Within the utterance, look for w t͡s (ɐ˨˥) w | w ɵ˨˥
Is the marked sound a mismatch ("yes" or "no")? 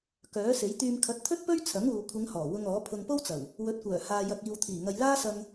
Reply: yes